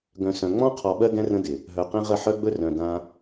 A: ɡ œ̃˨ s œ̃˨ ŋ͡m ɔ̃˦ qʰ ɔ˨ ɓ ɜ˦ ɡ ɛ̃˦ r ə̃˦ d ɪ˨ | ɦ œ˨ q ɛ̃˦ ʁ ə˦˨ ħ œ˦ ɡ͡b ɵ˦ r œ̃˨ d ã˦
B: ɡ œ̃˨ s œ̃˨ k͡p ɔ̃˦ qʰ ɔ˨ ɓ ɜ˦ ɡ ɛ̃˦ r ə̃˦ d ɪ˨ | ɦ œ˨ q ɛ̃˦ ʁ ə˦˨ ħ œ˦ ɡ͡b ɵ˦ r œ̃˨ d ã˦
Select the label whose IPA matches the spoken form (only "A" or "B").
A